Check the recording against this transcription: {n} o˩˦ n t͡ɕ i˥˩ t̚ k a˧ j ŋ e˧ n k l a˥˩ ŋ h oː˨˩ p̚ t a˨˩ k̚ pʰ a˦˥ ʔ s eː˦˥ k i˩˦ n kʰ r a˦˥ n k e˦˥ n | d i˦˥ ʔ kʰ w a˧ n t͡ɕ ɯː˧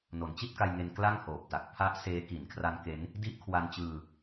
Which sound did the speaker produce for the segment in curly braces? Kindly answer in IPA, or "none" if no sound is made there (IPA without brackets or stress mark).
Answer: n